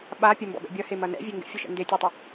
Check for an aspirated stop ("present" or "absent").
absent